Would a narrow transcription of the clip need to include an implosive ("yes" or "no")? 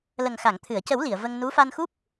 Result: no